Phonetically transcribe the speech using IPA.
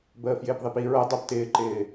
b əː f j ɪː p ðˤ e p i ɹ ɤ dˤ a p t ɪː ǃ ɪː

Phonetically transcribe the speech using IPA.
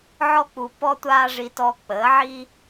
ʕ ɔ˥ k͡p u˧ p ɔ˥ tʷ aː˥ ʐ i˧ t ɔ˧ k͡p əː˨˥ ʕ i˥

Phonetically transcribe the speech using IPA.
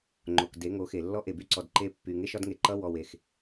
ŋ͡ǃ o˨ k d e˨˦ ŋ o˨˦ x e˨ lː ɔ˦ ʔ e˨ b y˦ ǀ ɔ˨ d ǃ e˦ pː y˨ ŋ e˦ ʃ ɒ˦ d ŋ e˨ ǃ ʌ˦ w ɔ˨ w e˨ x

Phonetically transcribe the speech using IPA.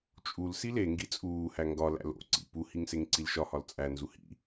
t͡ʃʼ u l s i l e ŋ ɡ i t͡sʼ uː h æ ŋ ɡ ɒ l æ̰ l o̰ ǀ ḭ p u h i ŋ s e ŋ ǀ i l ʃ ɒ h ɒ l t͡sʼ æ n z u h ḭ

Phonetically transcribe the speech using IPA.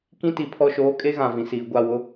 k ĩ˦ t i˨ pʰ ɔ˦˨ ʃ oː˦ kʼ e˦ ɣ ã˨ v ĩ˨ s iː˨ ɡʷ a˦˨ w ʊ˦

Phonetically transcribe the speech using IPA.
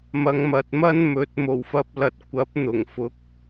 m ɐ˨˧ ŋ m ɐ˨ t̚ m ɐ˥ n m ɵ˨˥ t̚ m o˨˩ w f ɐ˨ p̚ l ɐ˨ t̚ kʷ ɐ˨˥ p̚ n̪ ʊ˨˩ ŋ f ʊ˨˥ k̚

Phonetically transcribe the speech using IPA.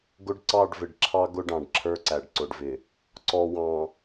ɡ ʊ˦ ɖ ǀ ɑ˦˨ ɖ v ɪ˨ ɖ ǁʰ ɑ˦ ɡ ʊ˦ ɖ ɑ̃˨ ɖ ǁʰ ə˞˦ ǀ æ˨ ɖ ǀ ʊ˨ ɖ v ɪ˨ | ǀ ɔ˨ w ɑ̃˨

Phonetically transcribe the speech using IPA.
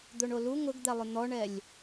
d̪ o ɳ o l u ŋ ʊ ɡ d̪ ɛ lˠ ʊ n̪ ɔ ɳ ɛ lʲ

